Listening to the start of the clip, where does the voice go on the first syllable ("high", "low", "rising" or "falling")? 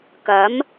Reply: rising